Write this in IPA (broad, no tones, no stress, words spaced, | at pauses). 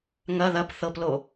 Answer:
ŋɐ ðɐp θɤplo